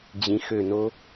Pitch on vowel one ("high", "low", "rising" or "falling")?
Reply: rising